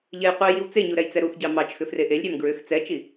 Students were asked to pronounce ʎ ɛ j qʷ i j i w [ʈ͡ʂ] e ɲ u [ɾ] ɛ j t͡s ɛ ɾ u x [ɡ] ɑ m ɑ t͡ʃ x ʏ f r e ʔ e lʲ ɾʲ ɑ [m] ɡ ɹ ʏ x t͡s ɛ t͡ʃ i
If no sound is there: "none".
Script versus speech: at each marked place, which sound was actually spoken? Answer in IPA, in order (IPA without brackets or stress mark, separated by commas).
t͡s, ɾ, ɟ, m